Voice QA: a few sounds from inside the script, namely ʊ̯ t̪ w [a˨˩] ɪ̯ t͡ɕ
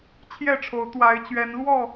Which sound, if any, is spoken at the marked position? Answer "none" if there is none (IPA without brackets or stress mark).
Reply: a˨˦